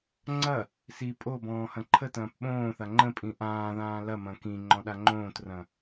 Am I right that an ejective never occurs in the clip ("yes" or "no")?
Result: no